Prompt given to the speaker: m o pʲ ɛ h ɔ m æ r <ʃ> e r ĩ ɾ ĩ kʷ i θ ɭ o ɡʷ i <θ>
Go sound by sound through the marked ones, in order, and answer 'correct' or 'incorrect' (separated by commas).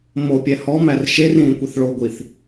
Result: correct, correct